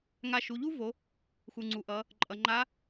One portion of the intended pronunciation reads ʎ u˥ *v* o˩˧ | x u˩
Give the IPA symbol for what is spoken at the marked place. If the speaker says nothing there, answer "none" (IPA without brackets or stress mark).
v